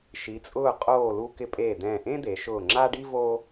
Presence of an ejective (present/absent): present